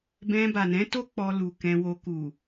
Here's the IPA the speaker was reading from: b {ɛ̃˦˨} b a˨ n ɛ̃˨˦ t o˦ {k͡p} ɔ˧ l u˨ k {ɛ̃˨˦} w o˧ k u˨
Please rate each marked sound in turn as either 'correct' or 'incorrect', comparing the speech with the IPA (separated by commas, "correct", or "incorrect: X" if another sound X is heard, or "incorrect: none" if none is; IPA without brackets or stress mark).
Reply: incorrect: ɛ̃˧, correct, incorrect: ɛ̃˧